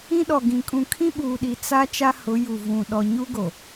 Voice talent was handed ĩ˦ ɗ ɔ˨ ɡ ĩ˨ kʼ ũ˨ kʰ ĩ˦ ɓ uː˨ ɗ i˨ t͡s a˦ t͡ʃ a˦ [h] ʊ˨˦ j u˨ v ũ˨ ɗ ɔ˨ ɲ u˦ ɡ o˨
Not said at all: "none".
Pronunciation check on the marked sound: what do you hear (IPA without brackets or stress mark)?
h